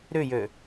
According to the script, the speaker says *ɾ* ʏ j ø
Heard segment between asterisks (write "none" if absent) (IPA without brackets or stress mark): ɾ